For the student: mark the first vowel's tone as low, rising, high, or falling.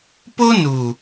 high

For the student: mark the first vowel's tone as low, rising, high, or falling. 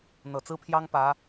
low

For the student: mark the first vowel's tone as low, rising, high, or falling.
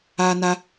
high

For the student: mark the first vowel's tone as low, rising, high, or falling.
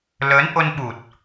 rising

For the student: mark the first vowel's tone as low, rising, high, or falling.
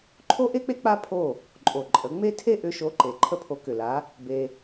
high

